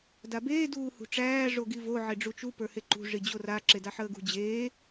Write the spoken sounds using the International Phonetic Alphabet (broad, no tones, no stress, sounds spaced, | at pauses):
d a b eː d uː h ṳ ʈ͡ʂ æː ʐ o ɡ i v o ʕ e ɖ͡ʐ u t͡ʃ u p ə˞ h e ǃ ṳ ʐ i d͡ʑ o r a ǁ e d a ħ əː ɡ ṳ d͡ʑ eː